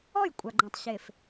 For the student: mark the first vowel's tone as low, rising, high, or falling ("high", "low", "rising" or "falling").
falling